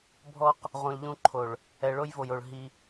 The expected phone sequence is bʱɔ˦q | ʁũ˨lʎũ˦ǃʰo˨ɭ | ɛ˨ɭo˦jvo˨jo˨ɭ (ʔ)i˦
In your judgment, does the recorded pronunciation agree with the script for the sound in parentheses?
no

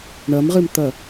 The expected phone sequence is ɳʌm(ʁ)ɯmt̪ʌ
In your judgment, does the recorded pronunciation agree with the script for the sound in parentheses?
yes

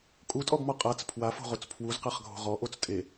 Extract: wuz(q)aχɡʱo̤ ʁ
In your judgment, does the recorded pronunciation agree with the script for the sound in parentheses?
yes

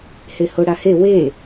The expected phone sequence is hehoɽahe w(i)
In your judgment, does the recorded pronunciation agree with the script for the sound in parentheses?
no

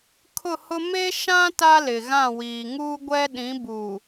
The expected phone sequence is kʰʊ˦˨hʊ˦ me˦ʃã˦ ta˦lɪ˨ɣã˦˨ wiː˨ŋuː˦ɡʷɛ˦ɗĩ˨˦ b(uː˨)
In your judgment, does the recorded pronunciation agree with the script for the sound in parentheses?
yes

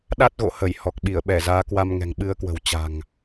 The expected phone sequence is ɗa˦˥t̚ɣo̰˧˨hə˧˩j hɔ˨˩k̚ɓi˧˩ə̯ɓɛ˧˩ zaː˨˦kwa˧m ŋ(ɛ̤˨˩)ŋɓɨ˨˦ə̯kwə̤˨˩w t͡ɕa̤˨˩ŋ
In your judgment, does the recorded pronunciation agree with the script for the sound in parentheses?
yes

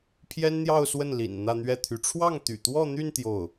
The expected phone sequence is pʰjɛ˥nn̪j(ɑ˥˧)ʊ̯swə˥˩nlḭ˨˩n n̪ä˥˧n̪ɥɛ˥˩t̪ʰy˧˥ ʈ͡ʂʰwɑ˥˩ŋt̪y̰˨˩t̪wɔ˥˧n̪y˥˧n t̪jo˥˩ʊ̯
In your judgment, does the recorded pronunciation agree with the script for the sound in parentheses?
yes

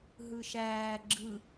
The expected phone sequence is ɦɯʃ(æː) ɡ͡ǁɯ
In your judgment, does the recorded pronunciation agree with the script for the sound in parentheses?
yes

